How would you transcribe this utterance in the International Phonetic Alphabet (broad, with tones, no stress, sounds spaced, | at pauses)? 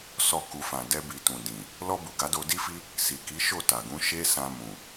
s ɔ˨ k u˨ f ã˨ d ɛ˧ b i˨ t ũ˨ d ĩ˨ | l ɔ˧ b u˨ ɡ a˨˦ d o˧ d i˦ f i˦ | s i˨ k i˨˦ ʃ o˦˨ t a˨ ɡ ũ˨˦ ʃ e˦ s ã˧ m ũ˨